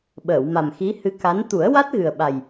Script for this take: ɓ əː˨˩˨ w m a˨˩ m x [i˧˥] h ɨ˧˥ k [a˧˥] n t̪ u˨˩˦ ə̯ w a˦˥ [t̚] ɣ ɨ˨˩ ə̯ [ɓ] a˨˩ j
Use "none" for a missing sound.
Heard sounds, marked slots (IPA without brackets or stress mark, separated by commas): i˧˥, a˧˥, t̚, ɓ